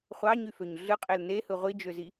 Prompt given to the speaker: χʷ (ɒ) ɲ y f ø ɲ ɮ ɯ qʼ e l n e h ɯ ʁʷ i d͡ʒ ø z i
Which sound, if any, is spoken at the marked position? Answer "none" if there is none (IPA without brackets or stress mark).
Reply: ɑ